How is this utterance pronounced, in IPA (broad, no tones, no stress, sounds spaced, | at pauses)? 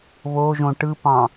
β o ʒ õ ʈ ɯ p ɑ̃